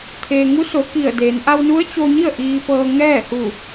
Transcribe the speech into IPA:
t̪ʰ eː˩ ŋ u˧˥ s o˩˧ k i˧˩ ə̯ d eː˩˧ n ʔ a˧ w n u˧˥ ə̯ t͡ɕ o˧ ɲ i˥˨ ə̯ ʔ iː˧ p ɤː˧ ŋ ɛː˥˨ h u˧˩

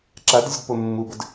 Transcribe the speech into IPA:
ǁ a d zʲ ə d p o mː u b ə d

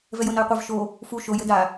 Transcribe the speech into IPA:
v ɛ j o n ɐ j qʷ ɛ v ʃ o | f u ʃ o j ɘ d a

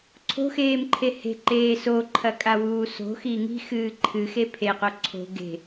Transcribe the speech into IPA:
ǀʰ o̤ x eː m ǃʰ e h e̤ ǃ eː s o ǃʰ ɐ kʼ a w uː s o̤ x i ŋ i̤ x ɨː ǃʰ ɨ x e pʰ e q o ǀʰ o̤ ɡ e̤

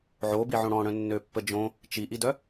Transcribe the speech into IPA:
ʕ o b i ʕ õ ɽ ɔ̃ ɽ œ̃ nː ø pː ə d͡ʒ õ | t͡ʃ i ʔ i d œ

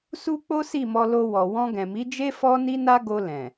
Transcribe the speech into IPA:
s u˦ k͡p o˦ s i˦˨ m ɔ˧ l o˧ w ɔ˨ w ɔ̃˧ ɡ ɛ̃˨ m i˨˦ d͡ʒ e˦ f ɔ˦ n i˦ n a˦ ɡ o˧ l ɛ̃˨

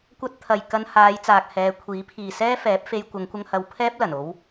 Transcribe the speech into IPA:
kʷ ɐ˥ t̚ t̪ʰ ɐ˨ j k ɐ˧ n h aː˨˧ j t͡s aː˨ k̚ h ɛː˨˧ kʷʰ iː˨˥ pʰ iː˨ s ɛː˥ f ɛː˨˥ p̚ f e˧ j kʷ ɐ˨˧ ŋ kʷ ɐ˧ ŋ h ɐ˧ w pʰ ɛː˥ p̚ l ɐ˨˩ n o˨˧ w

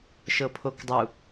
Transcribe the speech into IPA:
ʃ ɤ pʰ o k dˤ u

